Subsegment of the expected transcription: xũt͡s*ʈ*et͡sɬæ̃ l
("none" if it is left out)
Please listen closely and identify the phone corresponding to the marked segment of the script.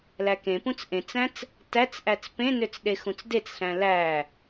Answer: d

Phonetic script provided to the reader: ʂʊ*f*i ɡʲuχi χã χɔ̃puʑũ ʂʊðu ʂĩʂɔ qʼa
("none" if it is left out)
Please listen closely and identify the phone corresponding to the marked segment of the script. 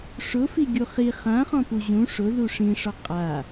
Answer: f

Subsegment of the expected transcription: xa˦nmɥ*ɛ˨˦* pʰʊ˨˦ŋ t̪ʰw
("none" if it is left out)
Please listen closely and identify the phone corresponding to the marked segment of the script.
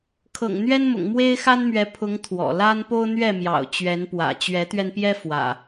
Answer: ɛ˨˦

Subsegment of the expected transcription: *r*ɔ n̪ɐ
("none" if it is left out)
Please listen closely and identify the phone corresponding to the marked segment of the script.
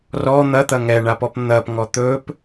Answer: r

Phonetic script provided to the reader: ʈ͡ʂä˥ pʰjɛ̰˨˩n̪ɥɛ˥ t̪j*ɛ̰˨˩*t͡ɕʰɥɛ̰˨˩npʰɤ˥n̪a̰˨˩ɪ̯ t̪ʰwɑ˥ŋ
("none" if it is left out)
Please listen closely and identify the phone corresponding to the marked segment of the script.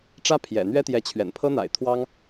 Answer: ɛ˧˥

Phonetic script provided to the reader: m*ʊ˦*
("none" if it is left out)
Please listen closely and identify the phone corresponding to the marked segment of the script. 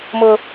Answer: ʊ˦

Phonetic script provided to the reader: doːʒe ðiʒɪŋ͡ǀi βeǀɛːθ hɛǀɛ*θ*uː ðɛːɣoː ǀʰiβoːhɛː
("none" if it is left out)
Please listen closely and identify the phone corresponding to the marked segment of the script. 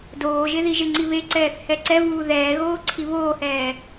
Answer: v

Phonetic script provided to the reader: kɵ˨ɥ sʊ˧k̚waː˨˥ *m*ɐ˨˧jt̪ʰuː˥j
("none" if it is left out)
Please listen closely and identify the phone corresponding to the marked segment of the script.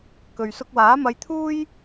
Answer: m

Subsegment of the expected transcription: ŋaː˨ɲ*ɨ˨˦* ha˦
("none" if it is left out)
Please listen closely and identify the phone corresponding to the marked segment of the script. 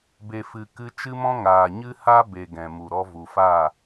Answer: ɨ˦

